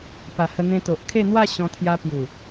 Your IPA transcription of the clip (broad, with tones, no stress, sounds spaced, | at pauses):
p a˨˩ h ə˧ n̪ ẽ˧ t̪ o˨ ʔ kʰ e˥˧ n̪ w a˥˧ ɕ ɔ̃˧ t̪ʰ j a˧ p j u˨˩